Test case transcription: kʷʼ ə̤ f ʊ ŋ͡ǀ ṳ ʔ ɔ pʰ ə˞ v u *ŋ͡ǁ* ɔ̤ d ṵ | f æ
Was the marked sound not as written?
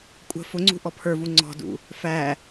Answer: yes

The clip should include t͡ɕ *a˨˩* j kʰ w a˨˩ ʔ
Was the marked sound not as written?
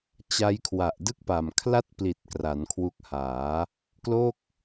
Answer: yes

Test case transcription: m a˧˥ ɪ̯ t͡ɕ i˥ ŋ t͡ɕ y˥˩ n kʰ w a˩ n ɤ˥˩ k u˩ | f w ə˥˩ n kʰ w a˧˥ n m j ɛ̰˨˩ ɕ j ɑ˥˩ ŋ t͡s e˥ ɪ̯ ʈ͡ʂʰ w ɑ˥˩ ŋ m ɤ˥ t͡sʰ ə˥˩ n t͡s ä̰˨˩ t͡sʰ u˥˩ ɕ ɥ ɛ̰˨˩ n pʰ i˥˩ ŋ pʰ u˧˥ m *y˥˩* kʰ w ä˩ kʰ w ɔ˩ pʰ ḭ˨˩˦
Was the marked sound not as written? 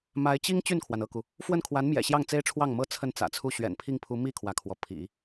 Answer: yes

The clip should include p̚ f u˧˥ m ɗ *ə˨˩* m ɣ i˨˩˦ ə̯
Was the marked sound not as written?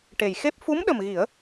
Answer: no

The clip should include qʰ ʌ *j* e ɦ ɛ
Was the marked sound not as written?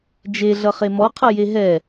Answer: no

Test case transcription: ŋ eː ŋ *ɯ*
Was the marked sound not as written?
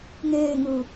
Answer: no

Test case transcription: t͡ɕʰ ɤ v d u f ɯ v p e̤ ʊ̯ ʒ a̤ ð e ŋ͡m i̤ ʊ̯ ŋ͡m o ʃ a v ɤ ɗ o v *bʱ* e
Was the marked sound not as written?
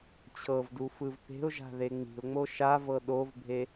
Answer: no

